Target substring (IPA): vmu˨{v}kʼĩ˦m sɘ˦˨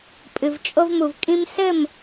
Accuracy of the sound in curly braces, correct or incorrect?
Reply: correct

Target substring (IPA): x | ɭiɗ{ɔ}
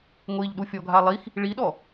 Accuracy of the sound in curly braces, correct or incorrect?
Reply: correct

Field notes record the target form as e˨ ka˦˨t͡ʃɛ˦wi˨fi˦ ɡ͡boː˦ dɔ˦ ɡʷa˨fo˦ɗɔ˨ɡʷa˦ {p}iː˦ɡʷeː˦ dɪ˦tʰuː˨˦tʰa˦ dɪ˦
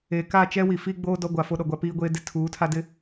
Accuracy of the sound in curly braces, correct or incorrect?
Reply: correct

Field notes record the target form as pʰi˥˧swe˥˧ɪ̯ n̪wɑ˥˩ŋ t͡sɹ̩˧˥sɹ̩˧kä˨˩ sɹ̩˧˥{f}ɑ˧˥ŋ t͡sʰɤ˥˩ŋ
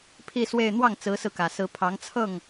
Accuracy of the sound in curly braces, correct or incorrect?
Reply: incorrect: pʰ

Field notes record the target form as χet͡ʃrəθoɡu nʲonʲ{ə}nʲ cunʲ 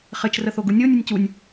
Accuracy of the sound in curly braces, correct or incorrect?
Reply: correct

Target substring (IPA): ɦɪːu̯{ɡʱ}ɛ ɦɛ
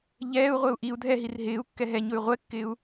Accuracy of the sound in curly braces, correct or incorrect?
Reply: incorrect: kː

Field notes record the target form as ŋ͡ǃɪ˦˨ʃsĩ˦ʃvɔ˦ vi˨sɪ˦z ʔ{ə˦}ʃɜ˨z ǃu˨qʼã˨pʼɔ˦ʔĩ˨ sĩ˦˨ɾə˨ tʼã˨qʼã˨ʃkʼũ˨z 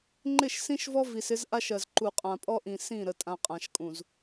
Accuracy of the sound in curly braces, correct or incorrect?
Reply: incorrect: a˦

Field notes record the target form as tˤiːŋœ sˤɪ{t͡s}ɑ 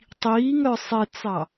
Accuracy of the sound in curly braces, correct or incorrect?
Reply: correct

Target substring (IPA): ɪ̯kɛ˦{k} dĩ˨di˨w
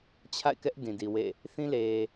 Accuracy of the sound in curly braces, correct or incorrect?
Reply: incorrect: ʔ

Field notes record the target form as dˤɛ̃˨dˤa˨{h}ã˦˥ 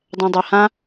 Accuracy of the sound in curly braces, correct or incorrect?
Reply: correct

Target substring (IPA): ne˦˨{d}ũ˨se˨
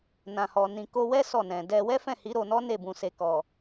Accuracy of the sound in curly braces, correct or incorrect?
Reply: incorrect: b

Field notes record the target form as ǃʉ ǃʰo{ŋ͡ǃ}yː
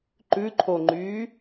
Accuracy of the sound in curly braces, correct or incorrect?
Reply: correct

